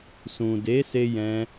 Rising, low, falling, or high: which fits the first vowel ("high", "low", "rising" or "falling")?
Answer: low